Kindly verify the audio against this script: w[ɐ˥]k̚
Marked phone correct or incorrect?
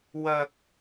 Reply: correct